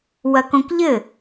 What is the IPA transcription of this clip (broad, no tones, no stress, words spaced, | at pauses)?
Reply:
wɐkõkʎɘ